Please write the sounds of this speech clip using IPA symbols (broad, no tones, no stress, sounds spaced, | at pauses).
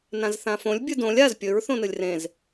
n ã z θ ã f õ lʲ bʲ ɨ d õ lʲ a z pʲ ɵ ɹ θ õ n ɨ lʲ r ẽ z